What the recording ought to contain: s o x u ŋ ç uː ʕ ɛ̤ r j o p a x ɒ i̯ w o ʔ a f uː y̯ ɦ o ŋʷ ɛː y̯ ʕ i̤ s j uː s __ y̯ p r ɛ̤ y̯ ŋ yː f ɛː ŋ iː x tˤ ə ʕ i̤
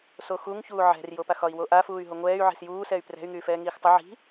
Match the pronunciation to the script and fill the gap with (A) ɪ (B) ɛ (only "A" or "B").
B